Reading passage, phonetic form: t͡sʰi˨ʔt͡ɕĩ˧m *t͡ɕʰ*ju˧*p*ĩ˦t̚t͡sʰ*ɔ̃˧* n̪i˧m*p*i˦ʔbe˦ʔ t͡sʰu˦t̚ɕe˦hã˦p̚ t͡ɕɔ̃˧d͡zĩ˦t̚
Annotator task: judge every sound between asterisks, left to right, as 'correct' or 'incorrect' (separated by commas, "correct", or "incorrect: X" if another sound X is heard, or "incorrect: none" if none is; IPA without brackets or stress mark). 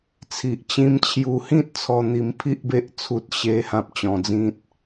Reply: correct, incorrect: h, incorrect: ɔ˧, incorrect: pʰ